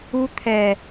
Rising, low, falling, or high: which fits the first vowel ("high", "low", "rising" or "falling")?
high